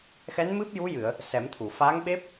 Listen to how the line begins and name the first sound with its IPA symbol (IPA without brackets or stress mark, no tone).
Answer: x